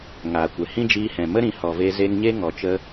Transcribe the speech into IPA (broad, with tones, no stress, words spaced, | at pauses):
ŋaː˨kʷɛ˨hĩ˦d͡ʒiː˧ hɛ̃˨mə˦ ɾĩ˨˦hɔ˨ve˧ ze˧ŋɲe˦ŋɔ˨t͡ʃə˧